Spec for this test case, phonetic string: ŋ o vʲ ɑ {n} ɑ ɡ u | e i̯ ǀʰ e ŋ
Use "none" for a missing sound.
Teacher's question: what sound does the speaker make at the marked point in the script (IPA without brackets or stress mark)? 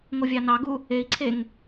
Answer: n